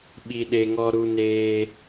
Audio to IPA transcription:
ɓi˨ɗe˨ŋɔ˧ ɾu˧neː˧

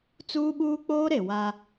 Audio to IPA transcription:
t͡suː˦ɓuː˦ k͡poː˦ɾe˨ wa˦

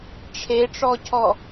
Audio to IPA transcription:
ʈ͡ʂʰeʈ͡ʂɔcʰɔ

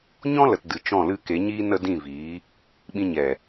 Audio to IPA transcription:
ɲɔ̃˦lə˨t dɨ˨ t͡ʃɔ̃˦˨lɨ˦˨ke˨˦ɲiː˦ nə˦dĩ˦˨viː˨˦ | ɓĩ˧ɲɛ˨

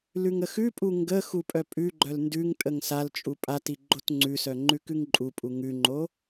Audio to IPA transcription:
lʉŋəxʉpʼu ŋɡə xupʼœpʼʉɡ͡ǃœl ndʉŋ tʼəŋsalt͡ʃʼu pʼati ɡ͡ǃotŋ͡ǀʉsœ ŋ͡ǃʉkʉŋǃʼupʼu ŋʉŋ͡ǃo

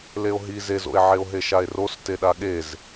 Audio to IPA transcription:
leo̯ɦi zezo̰e̯ ʕeo̯ɦeʃae̯ros teɗaɠez

